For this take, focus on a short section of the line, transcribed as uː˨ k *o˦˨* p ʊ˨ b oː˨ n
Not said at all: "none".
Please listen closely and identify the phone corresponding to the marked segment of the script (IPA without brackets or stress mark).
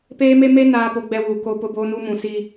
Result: o˨